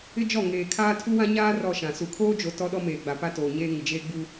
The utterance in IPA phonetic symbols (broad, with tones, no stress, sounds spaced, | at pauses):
ɪ˦ d͡ʒ ɔ˦˨ ŋ eː˨ kʰ aː˦ tʰ u˦ w ã˦ ɲ aː˦ r ɔ˦˨ ʃ ã˨ s u˨ kʰ oː˦ d͡ʒ o˨ t ɔ˦ ɗ ɔ˦ m eː˨ ɡ͡b a˨ p a˦ t oː˨ ɲ eː˦ ŋ ɪ˨ d͡ʒ eː˦ ɡ͡b u˦